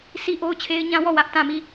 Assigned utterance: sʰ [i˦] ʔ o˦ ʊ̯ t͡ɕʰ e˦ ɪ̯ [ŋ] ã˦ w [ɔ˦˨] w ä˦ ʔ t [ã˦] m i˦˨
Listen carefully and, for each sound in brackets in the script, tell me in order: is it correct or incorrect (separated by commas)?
correct, incorrect, correct, incorrect